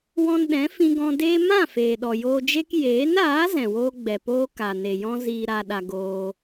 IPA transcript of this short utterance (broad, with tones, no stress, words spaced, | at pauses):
wɔ̃˧nɗɛ̃˨˦ fĩ˧ɡɔ̃˧deː˦ mã˦˨ feː˨ɗɔ˨joː˧d͡ʒe˦k jeː˨˦naː˨˦ zɛ̃˨woː˦ɡ͡bɛ˨poː˦ ka˨ne˨jɔ̃˦ ziː˧ɾa˧ɗa˧ ɡoː˧